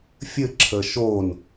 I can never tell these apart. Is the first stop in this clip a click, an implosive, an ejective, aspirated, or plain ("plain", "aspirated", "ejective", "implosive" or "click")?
click